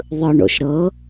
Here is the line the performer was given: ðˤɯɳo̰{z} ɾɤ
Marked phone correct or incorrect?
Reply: incorrect